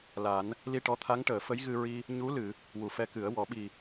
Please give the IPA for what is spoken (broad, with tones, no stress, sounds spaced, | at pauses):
l a˨˩˦ n | l i˧ ʈ ɔ˧˥ t̪ʰ a˧˥ ŋ ʈ əː˨˩˨ f ə˧˥ j ɣ ɨ˧ ɹ i˧ | ɲ u˧˥ l ɨ˨˩˨ | w u˨˩ f ɛ˧ k ɨ˨˩˦ ə̯ w ɔ˨˩˦ ɓ i˨˩